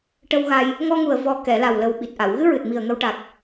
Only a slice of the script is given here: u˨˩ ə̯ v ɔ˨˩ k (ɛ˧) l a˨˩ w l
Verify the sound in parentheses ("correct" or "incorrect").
incorrect